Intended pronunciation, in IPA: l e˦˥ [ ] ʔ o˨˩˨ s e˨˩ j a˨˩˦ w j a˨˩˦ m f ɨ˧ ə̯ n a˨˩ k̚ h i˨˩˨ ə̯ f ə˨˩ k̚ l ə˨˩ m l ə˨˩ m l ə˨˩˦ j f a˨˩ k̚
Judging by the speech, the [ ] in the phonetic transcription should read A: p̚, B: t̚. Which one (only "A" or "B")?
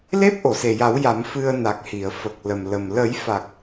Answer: A